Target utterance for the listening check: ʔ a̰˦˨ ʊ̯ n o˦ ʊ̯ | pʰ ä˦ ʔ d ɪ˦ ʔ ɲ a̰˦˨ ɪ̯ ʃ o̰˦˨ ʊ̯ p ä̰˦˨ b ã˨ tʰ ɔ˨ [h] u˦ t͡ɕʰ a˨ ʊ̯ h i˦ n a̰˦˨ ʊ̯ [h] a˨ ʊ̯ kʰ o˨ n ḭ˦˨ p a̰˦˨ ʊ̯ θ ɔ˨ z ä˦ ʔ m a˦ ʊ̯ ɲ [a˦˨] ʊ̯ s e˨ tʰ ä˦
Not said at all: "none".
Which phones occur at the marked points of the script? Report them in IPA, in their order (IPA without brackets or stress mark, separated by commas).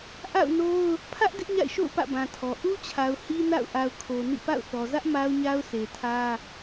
ʔ, ʔ, a˦